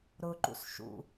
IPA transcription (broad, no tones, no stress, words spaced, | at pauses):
ɾʊǃṵs ʃṵ